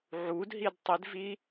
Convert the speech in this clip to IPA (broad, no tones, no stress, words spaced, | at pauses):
ʕudɦid tˤidvi